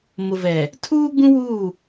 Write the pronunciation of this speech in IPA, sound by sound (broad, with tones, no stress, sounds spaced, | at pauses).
m ʊ˨ v ɛ˨ | tʰ uː˦ ɡ͡b ũ˦ w uː˦˨